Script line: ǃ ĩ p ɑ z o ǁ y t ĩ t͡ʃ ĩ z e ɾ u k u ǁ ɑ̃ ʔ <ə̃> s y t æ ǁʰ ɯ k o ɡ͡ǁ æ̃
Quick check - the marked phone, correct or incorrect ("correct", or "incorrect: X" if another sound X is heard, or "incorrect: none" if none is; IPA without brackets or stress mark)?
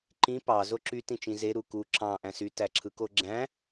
incorrect: æ̃